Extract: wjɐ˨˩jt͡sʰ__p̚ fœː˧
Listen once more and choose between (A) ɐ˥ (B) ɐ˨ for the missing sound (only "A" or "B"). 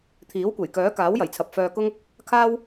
B